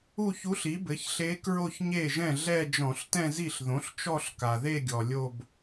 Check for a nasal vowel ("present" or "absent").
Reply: present